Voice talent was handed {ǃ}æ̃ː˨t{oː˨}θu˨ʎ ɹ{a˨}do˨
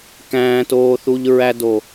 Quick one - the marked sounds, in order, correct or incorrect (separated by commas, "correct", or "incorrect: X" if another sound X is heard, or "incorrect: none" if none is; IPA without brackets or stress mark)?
incorrect: k, correct, incorrect: æ˨